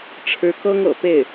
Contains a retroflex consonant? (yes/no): yes